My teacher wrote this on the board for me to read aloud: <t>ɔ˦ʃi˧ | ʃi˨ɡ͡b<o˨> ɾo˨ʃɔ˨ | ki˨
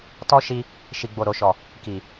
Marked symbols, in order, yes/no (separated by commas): yes, yes